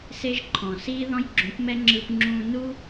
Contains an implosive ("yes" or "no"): no